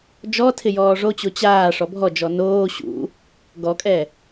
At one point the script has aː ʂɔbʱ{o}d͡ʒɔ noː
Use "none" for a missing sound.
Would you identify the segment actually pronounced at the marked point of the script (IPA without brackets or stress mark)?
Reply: ɔ